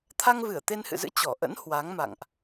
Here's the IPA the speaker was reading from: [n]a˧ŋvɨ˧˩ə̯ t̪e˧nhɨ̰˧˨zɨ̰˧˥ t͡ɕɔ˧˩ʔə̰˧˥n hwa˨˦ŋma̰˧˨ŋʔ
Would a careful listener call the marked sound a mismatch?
yes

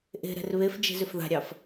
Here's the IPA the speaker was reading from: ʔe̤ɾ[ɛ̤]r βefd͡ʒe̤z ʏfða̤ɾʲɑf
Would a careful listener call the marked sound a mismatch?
no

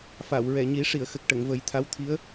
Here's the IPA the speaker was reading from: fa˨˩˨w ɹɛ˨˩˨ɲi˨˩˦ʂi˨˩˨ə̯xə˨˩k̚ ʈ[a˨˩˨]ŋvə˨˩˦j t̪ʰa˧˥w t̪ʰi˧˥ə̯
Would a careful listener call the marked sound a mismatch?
yes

